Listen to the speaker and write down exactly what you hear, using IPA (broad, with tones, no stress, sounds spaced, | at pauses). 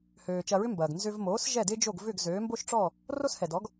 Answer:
h øː˩ t͡ʃ ɐ˧ ɹ ʏ˥ m b ɐː˩ ɡ n z ʏ˧ v m oː˩˥ s ʒ ɛ˥˩ d ɪː˥ d͡ʒ o˥˩ ɡ v ʏ˥˩ ɡ z øː˩˥ m b o˥ ʃ ʈ͡ʂ ɔ˥˩ | r o˥ s h ɛ˩ d ɔ˩˥ ɡ